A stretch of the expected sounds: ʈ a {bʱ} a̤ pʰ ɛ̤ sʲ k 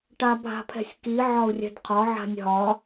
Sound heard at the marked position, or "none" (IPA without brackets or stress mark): bʱ